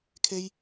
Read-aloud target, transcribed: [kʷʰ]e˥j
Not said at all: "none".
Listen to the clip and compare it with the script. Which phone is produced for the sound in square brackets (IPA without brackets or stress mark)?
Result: kʰ